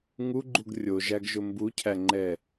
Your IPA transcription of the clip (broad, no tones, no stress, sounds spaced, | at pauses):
ŋ u ɡ͡ǃ u ɡ rʲ o ʒ æ ɡ ʒ ʊ m b u cʰ æ ŋ͡ǃ ɛ